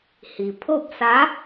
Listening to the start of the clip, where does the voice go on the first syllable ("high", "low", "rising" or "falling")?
low